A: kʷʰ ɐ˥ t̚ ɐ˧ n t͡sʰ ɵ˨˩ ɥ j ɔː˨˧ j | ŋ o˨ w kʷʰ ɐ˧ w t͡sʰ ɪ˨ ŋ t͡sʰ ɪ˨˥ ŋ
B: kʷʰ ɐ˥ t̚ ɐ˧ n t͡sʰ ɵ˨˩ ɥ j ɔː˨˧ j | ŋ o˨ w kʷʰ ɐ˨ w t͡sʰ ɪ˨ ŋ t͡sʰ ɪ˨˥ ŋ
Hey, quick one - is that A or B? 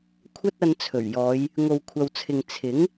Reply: B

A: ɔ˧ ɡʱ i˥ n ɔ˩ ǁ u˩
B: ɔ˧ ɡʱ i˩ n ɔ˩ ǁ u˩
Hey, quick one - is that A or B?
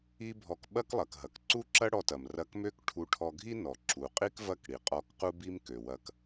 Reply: A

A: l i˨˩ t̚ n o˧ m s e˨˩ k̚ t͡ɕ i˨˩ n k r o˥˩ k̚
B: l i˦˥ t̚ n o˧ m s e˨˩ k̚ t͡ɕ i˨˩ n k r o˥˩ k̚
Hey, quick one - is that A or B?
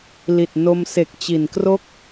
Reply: A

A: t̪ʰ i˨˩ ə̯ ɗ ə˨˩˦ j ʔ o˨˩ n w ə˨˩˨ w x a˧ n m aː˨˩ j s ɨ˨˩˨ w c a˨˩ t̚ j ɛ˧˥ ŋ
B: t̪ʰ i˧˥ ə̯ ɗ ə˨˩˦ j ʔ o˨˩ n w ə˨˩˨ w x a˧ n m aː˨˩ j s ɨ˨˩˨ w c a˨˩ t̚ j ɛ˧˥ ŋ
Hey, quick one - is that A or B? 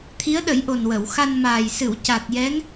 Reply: B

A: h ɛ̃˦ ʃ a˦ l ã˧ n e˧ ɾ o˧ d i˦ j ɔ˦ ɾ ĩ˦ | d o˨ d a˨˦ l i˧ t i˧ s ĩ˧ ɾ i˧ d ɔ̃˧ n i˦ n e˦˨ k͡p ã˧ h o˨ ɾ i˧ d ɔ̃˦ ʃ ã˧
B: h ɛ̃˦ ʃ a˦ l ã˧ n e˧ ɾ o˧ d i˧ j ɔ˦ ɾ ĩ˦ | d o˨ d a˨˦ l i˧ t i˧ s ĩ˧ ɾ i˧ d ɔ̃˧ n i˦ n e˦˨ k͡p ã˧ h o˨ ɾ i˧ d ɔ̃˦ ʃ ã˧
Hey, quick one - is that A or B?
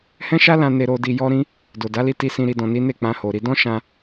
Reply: B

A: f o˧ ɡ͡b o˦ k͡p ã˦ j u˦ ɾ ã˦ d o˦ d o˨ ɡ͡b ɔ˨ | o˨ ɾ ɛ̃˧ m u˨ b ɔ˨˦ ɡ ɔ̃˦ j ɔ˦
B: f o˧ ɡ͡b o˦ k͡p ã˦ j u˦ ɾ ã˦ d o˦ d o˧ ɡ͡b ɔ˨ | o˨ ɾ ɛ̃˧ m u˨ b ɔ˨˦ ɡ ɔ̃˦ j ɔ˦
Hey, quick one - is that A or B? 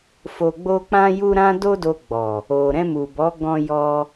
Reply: B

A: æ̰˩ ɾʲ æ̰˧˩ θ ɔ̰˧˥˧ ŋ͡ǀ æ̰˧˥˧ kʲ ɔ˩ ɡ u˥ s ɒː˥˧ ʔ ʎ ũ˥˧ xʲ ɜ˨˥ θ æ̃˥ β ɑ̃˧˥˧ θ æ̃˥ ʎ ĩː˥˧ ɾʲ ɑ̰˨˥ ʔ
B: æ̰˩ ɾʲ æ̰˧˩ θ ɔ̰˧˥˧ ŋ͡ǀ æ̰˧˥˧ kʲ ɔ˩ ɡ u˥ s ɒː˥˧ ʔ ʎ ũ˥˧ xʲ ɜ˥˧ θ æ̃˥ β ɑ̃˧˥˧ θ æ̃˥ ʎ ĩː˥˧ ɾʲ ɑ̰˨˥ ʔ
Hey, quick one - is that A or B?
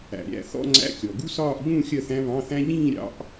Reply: B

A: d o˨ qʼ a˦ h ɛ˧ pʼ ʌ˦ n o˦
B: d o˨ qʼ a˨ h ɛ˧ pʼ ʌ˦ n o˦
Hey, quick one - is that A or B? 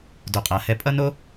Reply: B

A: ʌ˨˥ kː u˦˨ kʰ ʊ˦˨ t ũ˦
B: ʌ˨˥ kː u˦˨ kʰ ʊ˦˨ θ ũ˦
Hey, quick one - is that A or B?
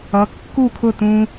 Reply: A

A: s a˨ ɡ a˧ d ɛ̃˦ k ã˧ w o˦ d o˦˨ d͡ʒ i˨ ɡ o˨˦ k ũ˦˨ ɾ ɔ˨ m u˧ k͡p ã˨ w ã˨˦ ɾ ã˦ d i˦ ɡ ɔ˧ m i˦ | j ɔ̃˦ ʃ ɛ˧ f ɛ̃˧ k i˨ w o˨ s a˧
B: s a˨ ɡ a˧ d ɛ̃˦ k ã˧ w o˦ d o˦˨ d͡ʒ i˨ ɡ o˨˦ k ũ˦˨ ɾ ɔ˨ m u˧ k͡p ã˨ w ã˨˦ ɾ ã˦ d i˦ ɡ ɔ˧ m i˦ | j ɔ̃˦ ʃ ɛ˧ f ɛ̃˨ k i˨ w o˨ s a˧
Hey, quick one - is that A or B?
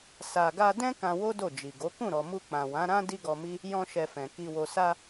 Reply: B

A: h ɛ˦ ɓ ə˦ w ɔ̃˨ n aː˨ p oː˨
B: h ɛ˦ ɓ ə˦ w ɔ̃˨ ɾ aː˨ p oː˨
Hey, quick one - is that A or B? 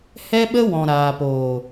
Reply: B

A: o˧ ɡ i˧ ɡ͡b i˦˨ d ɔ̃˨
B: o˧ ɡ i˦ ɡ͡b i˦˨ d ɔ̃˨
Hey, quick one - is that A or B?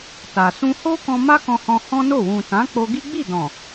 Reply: B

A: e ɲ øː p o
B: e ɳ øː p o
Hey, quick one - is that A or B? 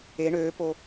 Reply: B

